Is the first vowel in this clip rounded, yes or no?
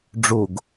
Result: yes